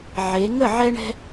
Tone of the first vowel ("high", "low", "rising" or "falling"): rising